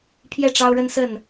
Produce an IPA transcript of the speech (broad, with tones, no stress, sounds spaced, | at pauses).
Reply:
pʰ j ɛ˥˨ ʈ͡ʂ ɑ˦ ʊ̯ ɻ ə˦ n s ə˥˨ n